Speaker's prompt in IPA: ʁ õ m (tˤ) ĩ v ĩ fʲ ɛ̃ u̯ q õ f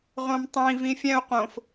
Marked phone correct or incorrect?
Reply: correct